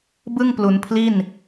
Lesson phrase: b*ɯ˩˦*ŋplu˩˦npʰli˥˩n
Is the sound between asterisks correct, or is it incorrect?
incorrect